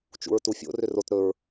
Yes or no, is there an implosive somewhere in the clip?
no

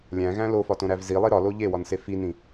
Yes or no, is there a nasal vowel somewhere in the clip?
yes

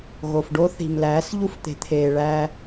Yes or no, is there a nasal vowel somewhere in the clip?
no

